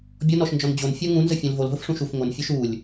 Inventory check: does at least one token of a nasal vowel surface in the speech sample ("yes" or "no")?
yes